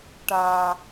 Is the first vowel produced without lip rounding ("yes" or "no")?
yes